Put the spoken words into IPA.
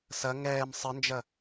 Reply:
s ɐ ŋ ɛː m sˤ ə n d͡ʒ ɐ

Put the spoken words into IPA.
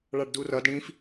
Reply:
ɭ ɑ ɖ d u r ʌ d ɽ ĩ f

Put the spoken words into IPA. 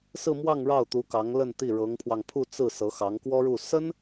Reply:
s ɹ̩˥˧ m w ɑ˥˧ ŋ ɻ ɑ˥˩ ʊ̯ t̪ u˧˥ k ɑ˧˥ ŋ l ə˥˧ n t̪ i˥˩ ɻ ɤ˧˥ ŋ pʰ w ɑ˧ ŋ pʰ u˥˧ t͡s ɹ̩˥˩ s ɤ˧˥ x ɑ˧˥ ŋ k w ɔ˥ ɻ u˥˩ s ə˥ n

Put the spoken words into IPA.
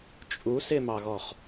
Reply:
t͡ʃʼ u s ɪ m ɑ ɣ ɔ χ

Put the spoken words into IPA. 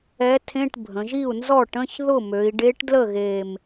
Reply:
ɛ˧˥ tʰ ẽ˧˥˧ ʈ bʱ ə̃˩˧ ʒ i˥˩ u̯ n z ɔ˥˩ ʈ ə̃˧˥˧ ç ð ʊ˥˩ m ø˩˧ i̯ ɖ e˧˥ ʈ d l ə˥˩ ɣ e˨˩ m

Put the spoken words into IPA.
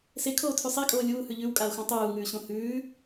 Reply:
s e kʰ oː tʰ ʉ sˤ e kʼ oː lʲ uː h ʉ ʎ ʉ w kʼ a o̯ x õ tˤ uː ŋ ʉː ɕ õ h ʉː

